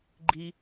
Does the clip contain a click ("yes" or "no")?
yes